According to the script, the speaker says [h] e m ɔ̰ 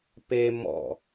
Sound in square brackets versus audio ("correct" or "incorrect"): incorrect